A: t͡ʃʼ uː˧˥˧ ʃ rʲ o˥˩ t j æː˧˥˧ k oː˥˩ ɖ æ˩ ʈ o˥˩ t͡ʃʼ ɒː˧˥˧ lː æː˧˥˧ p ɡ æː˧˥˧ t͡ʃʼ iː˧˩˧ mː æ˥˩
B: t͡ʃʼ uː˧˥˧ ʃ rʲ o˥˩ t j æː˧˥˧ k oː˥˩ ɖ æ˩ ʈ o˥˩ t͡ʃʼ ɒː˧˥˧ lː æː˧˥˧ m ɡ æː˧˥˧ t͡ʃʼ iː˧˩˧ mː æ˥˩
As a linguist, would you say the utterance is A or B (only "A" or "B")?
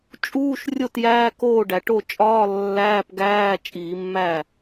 A